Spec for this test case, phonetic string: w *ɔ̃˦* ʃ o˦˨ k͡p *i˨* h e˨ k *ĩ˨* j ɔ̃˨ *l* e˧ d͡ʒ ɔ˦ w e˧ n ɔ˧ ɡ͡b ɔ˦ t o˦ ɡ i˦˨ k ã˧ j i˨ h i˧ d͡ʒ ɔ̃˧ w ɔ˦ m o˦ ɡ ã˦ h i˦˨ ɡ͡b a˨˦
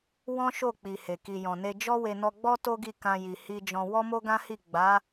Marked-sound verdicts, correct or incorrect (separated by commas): correct, correct, incorrect, incorrect